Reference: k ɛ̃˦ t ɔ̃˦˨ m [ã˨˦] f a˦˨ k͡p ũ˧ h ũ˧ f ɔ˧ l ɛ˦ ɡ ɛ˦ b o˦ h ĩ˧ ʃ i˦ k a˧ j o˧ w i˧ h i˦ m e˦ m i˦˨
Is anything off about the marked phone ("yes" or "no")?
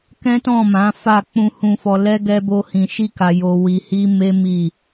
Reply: no